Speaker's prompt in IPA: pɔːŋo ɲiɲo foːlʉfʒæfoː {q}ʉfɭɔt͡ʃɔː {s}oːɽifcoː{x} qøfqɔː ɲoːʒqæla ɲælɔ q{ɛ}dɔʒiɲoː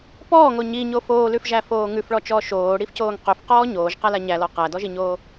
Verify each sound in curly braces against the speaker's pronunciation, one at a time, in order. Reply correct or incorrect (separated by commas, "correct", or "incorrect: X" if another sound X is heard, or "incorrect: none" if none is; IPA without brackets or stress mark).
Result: incorrect: ŋ, incorrect: ʃ, incorrect: ŋ, incorrect: æ